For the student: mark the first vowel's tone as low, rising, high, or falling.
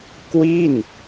falling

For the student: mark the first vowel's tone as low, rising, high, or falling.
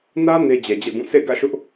high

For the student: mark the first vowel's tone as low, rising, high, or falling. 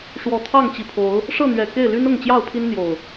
low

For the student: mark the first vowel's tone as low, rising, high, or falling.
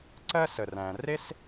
high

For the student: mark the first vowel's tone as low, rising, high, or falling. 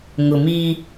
low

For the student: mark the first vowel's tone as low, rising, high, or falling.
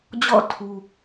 falling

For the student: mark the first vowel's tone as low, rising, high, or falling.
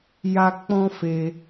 high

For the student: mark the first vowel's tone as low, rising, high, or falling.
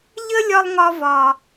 high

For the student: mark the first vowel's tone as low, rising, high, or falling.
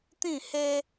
falling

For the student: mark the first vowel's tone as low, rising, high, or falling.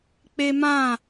high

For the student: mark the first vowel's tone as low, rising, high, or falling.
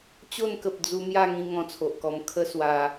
falling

